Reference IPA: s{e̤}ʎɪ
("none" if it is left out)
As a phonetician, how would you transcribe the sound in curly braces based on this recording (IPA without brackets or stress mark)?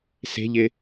e̤